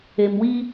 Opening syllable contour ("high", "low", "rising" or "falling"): low